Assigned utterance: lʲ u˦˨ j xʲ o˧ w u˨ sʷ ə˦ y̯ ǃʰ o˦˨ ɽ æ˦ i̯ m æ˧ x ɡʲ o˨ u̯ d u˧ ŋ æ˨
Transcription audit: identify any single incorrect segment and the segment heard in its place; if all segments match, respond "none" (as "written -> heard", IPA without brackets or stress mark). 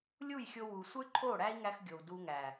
m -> ŋ